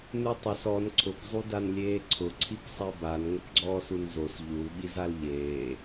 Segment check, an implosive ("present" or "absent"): present